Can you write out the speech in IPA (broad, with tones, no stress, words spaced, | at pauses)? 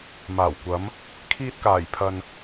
maː˨˩wkʷɐ˨˧m | kʰiː˧t̚kaː˨˩jpʰɐ˨n